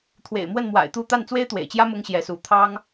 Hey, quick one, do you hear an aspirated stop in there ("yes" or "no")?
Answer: yes